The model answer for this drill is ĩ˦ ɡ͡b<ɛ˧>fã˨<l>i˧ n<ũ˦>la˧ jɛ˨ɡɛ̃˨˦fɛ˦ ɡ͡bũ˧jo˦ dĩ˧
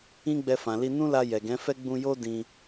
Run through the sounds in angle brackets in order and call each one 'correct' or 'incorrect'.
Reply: correct, correct, correct

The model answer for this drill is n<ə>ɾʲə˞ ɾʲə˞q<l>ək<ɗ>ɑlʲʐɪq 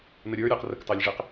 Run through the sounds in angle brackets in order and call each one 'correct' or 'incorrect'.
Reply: correct, incorrect, incorrect

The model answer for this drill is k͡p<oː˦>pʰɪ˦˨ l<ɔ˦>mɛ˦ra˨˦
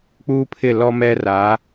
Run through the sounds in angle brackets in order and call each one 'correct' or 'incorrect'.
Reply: incorrect, correct

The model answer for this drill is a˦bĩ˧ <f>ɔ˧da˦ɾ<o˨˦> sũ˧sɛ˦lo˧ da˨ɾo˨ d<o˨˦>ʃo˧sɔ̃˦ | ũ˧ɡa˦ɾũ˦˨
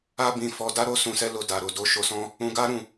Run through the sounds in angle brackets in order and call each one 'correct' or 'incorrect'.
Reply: correct, incorrect, correct

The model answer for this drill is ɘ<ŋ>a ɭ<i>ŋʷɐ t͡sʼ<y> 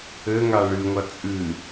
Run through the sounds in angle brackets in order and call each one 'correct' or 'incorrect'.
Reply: correct, incorrect, incorrect

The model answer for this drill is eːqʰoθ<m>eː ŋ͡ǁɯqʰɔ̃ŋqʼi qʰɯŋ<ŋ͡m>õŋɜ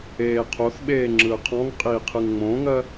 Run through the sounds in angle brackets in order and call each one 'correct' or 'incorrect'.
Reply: incorrect, correct

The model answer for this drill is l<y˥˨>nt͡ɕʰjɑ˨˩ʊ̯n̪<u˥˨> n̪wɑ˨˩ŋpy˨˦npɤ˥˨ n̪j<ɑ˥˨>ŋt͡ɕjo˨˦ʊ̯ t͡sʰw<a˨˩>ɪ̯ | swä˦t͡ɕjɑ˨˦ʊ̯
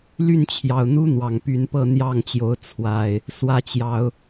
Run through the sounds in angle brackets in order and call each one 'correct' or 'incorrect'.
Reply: correct, incorrect, correct, correct

